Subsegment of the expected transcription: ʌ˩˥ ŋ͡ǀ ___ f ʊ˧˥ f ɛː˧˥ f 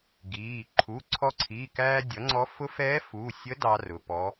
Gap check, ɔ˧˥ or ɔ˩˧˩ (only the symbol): ɔ˧˥